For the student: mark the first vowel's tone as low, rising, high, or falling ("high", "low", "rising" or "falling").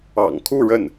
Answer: low